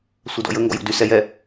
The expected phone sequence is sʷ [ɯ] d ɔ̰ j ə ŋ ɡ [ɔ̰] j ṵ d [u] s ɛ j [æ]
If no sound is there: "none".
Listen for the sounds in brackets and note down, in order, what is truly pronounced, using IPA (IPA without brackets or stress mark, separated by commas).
ə, ɔ̰, y, ɛ